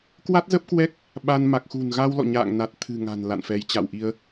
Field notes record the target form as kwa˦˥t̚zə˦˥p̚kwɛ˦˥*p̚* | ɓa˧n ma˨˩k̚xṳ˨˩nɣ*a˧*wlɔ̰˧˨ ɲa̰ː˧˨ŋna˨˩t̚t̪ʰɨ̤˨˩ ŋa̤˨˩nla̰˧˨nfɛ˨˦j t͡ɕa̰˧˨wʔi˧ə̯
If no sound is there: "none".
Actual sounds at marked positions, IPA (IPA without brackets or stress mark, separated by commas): k̚, a˧